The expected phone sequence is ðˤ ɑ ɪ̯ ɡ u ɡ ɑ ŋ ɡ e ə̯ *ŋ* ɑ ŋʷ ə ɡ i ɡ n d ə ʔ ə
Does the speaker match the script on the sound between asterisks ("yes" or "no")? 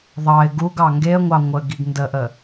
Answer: no